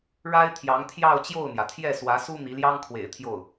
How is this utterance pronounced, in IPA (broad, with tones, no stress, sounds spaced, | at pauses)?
ɻ a˥ ɪ̯ t̪ʰ j ɑ˧˥ ŋ t̪ʰ j ɑ˥˧ ʊ̯ t͡ɕ j o˥˩ ʊ̯ n̪ j ä˩ t̪ʰ j ɛ˥˩ s w ä˧˥ s u˥ n̪ i˧˥ l j ɑ˥ ŋ kʰ w ḛ˨˩ ɪ̯ t̪ʰ j o˥˩ ʊ̯